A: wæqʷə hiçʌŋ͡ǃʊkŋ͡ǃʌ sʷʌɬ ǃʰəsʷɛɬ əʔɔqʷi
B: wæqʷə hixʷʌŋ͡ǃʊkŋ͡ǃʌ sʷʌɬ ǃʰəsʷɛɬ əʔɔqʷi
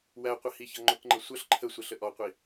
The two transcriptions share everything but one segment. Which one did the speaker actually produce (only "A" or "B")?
A